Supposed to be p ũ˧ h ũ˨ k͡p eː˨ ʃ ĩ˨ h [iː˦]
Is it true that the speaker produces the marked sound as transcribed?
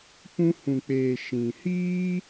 yes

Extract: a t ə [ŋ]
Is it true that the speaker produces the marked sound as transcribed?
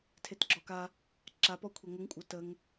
yes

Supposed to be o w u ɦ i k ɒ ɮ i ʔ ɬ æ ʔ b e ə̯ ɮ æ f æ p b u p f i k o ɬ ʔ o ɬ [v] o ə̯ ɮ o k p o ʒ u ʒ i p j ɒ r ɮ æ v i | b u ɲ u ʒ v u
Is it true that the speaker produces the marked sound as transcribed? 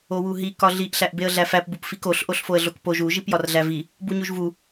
no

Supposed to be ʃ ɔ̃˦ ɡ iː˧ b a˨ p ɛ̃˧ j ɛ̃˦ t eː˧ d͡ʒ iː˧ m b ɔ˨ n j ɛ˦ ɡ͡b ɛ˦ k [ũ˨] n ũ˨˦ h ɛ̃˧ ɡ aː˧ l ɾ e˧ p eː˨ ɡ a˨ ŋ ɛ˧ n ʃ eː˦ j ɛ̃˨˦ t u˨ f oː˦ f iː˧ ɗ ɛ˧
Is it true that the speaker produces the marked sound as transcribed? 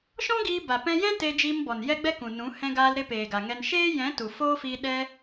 yes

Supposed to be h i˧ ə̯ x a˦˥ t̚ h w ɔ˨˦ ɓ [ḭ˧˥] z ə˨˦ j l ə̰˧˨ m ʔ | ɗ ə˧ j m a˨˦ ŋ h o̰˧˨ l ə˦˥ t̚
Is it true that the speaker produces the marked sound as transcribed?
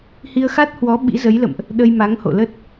yes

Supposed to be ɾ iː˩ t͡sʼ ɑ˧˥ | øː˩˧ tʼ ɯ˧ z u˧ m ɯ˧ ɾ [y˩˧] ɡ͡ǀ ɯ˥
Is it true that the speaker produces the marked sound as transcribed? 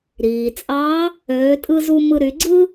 yes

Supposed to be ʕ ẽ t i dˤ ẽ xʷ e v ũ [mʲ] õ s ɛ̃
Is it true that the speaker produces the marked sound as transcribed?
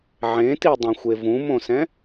no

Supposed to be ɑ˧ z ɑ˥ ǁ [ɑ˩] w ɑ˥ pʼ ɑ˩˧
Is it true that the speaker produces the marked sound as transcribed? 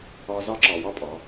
yes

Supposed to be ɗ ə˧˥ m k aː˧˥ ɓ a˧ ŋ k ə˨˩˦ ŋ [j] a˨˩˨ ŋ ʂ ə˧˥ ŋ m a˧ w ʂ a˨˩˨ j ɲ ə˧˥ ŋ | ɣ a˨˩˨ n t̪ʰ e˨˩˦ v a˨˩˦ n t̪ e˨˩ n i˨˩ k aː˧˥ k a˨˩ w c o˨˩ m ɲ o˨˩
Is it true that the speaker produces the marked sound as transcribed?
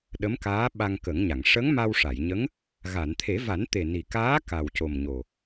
no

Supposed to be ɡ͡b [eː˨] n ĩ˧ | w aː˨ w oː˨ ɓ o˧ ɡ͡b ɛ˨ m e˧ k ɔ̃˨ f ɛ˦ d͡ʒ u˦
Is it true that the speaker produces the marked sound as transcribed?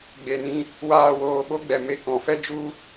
no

